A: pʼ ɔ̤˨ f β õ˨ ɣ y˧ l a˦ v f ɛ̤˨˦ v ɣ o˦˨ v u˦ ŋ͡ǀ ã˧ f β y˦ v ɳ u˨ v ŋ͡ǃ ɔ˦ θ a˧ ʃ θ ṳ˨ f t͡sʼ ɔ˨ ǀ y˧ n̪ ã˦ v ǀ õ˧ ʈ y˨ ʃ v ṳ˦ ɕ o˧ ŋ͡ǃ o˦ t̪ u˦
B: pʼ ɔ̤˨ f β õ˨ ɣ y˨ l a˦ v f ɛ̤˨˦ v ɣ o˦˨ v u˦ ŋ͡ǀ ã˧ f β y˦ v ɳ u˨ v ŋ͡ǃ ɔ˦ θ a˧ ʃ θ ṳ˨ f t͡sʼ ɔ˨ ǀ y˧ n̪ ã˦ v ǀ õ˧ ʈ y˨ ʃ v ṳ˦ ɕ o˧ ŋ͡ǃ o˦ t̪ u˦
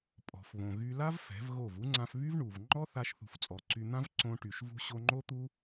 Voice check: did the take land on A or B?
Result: A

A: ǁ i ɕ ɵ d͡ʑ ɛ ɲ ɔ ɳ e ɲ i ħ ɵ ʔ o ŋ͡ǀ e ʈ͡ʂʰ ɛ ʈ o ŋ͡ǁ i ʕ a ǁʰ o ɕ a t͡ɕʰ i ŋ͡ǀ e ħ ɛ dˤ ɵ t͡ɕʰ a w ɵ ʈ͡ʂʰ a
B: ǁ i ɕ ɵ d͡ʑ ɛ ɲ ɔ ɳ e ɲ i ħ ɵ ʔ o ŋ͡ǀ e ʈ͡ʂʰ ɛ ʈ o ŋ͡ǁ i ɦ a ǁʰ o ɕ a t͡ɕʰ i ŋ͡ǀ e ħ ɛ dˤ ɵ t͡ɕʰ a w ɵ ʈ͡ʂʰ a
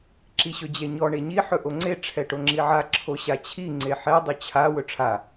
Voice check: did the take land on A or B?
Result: A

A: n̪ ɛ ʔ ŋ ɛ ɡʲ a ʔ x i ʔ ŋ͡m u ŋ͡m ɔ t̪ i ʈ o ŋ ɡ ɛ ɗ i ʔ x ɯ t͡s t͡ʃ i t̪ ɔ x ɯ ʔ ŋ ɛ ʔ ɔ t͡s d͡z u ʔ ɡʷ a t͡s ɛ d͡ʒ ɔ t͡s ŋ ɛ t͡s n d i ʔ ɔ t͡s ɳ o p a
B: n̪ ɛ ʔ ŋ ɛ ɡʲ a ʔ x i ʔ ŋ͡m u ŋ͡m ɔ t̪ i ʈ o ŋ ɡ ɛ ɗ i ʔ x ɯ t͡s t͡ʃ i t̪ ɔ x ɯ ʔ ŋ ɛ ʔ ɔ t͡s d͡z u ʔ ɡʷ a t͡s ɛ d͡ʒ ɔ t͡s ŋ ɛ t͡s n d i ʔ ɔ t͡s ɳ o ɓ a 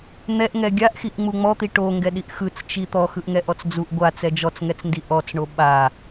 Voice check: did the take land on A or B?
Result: B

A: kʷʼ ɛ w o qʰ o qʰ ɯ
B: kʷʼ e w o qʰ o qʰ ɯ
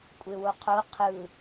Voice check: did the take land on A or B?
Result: B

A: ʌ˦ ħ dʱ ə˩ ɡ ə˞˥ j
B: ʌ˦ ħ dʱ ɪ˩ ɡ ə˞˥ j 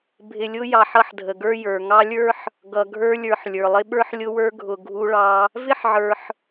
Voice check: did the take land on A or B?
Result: A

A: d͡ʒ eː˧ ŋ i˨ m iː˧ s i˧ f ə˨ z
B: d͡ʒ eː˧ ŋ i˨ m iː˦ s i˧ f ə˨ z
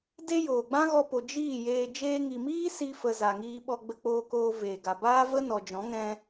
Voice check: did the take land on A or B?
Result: B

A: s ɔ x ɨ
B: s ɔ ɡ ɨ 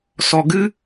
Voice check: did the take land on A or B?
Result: B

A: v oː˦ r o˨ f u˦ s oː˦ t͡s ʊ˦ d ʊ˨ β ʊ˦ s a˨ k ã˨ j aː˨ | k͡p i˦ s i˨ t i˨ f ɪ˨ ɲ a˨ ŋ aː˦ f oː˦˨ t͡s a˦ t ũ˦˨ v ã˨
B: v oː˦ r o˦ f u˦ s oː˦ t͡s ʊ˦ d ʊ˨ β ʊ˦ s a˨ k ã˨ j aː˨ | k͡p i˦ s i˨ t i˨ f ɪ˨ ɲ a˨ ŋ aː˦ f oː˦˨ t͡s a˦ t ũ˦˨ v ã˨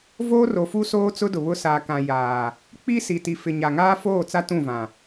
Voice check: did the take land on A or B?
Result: A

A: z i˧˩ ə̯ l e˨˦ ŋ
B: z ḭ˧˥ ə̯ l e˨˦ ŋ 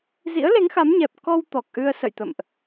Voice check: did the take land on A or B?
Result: B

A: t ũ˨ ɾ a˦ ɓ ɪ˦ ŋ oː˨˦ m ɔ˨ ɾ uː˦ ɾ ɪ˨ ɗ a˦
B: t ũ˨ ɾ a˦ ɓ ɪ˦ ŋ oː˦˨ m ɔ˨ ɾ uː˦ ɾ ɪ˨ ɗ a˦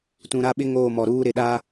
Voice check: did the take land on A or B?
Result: B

